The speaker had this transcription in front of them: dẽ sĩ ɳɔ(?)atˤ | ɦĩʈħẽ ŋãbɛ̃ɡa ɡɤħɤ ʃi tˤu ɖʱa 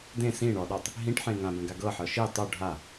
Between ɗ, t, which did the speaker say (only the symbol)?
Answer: ɗ